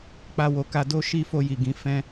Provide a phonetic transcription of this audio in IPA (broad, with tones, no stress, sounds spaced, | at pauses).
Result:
k͡p a˧ w o˨ k a˧ d o˦ ʃ i˧ f o˧ j i˨ ɡ ĩ˨˦ f ɛ̃˧